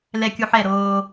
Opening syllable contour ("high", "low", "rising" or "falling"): low